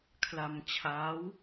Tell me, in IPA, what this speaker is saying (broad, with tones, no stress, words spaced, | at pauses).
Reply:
kʰla˧mt͡ɕʰaː˦˥w